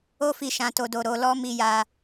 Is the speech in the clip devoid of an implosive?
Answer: yes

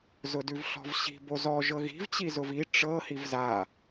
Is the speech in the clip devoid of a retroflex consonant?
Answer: no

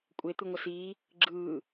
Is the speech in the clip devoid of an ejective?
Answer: no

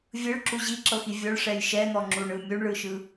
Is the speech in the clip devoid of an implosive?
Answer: yes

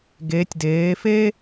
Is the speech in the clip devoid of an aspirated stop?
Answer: yes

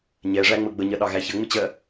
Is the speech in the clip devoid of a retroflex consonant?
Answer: no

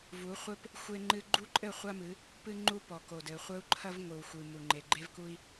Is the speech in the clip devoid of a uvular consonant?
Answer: no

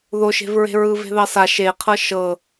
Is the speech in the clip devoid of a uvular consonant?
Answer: no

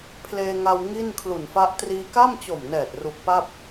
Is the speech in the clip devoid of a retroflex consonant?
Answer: yes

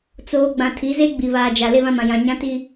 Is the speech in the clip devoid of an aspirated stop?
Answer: no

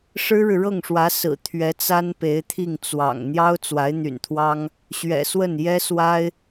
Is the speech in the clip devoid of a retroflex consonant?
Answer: no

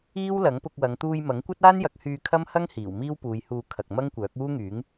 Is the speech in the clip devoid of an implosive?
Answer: yes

